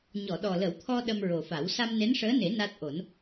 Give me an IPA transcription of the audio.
ɲ ɔ˨˩˨ ɗ ɔ˨˩ l ə˨˩˦ w t̪ʰ ɔ˧ ɗ ə˧ m ɹ o˨˩ f a˨˩˦ w s a˧ m n e˧˥ n ʂ əː˧˥ n e˨˩˦ n a˦˥ t̚ ʔ o˨˩˦ n

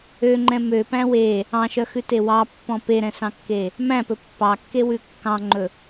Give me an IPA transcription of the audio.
ø ŋ͡ǃ ɛ̃ m ø p æ̃ w e | ɑ̃ ʃ œ x ʉ t e w ɑ pː ɔ̃ p e ɾ ɛ̃ s ɑ̃ kː e | m æ̃ p ɵ pː ɑ kː e w ʉ kː ɑ̃ ŋ͡ǃ ɵ

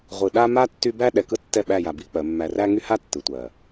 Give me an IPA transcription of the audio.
ʁʷ ɯ˨ ɗ a˦ m a˦ tː y˦ b æ˦ ɗ ɛ˨ k ɯ˦ tː ɛ˦˨ ɓ æ˦˨ j a˨ b i˦ k͡p ɜ˨˦ mː æ˨ r æ˦ ŋ y˦ h a˦ tː ɯ˨ tʷ ɜ˨

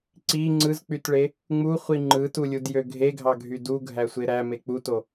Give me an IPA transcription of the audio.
ǀ i ŋ͡ǀ ɯ z k͡p y t ɭ e | ŋ͡m u χʷ i ŋ͡ǃ ɯ t u lʲ u d j ø ɡʱ e ɡʱ ɑ ɡʱ y d u ɡʱ æ sʷ e ɾ æ m e k͡p u t o

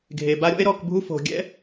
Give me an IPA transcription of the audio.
ɡʱ e˨ b a˦ ɾʲ ɔ̰˦ e̯ ɾ ɔ˦˨ k bʱ u˦ f o̤˧ ɡʲ ɛ̰˦

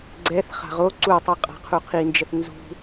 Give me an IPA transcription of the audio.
ɡ͡ǀ ɛ θ χ a̤ ʁ o ǀ u tˤ u qʼ a̤ qʰ u qʰ i n d͡ʒ ə θ n z ṳ

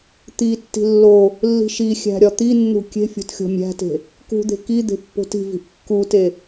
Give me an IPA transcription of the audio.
t̪ i tː i̤ lː o | lː i̤ ʃ i xʲ æ̤ ɾʲ ɒ t̪ i nː ṳ kʲ e̤ fʲ o̤ t xʲ o̤ mʲ æ̤ t e̤ | k ṳ d̪ e̤ k i d̪ e̤ pː o̤ t i̤ v i̤ ʔ kː u t e

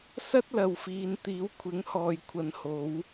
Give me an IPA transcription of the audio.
s ɐ˥ t̚ l ɐ˨ w f iː˨ n t̪ iː˨˥ w kʷʰ ɪ˨˥ ŋ h ɔː˨ j kʷʰ ɐ˨˥ n h o˨˥ w

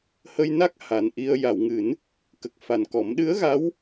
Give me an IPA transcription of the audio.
h ə˧ j n a˦˥ k̚ h a˨˩ n ʔ i˧ ə̯ j a˨˩˨ w ŋ ɨ˨˩˦ n | k ə˨˩ k̚ f a˨˩ n k ɔ˨˩˦ m ɗ ɨ˧˥ ə̯ ɣ a˧˥ w

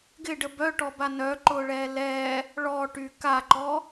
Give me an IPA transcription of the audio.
ɡ ɪ ɖ ə b œ ʈ ɔ b a n œ ǃ ʊː ɭ ɛː l ɛː | ɭ ɔ ʈ y k a ǃ ɔ

